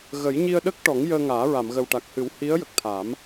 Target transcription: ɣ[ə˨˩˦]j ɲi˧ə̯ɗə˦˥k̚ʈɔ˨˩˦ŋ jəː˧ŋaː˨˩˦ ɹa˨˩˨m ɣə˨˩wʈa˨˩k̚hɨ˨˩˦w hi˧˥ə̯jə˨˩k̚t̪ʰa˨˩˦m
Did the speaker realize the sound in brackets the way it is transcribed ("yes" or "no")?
yes